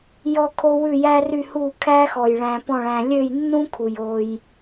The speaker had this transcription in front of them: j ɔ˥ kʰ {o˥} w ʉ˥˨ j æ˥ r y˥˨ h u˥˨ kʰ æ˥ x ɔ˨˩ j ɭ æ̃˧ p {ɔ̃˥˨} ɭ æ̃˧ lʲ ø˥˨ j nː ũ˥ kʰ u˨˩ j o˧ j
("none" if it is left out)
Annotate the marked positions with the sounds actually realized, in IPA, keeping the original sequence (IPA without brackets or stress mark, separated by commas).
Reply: o˥, ɔ̃˥˨